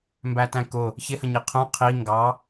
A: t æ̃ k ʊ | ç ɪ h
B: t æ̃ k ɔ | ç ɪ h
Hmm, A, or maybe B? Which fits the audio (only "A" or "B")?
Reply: A